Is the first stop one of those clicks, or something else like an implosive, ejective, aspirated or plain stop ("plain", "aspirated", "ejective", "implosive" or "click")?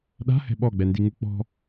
implosive